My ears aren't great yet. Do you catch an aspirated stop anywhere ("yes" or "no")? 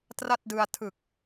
yes